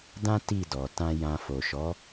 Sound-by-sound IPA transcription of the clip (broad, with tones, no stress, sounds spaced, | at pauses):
d ã˦ t i˦˨ d ɔ˨ t ã˧ j ã˨ f o˨ ʃ ɔ˨˦